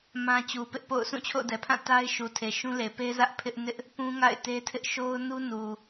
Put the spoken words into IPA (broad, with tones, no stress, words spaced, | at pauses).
mã˦t͡ɕu˨ pɪ˦ʔpo̰˦˨ʊ̯ sũ˦˨t͡ɕʰo̰˦˨ʊ̯dɛ˨pʰã˦˨ ta˦ɪ̯ ʃu˨tʰe˨ʃũ˦le˨ pe˦zä˦ʔ pʰɪ˦ʔ nɪ˦ʔ | pũ˦ŋa̰˦˨ɪ̯te˦tʰɪ˦ʔ ʃo˦ʊ̯nu˦nu˨